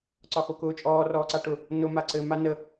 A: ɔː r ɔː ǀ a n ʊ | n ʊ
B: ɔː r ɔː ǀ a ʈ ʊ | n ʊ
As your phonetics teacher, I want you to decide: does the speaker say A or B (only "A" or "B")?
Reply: B